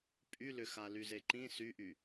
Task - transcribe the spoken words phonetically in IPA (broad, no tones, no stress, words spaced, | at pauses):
pʼylʏxa lyzeǃĩ syʔy